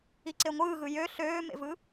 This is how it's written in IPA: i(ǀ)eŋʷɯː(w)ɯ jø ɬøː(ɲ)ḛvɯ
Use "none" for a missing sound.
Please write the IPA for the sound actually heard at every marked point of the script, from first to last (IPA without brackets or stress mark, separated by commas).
ǀ, ɣ, m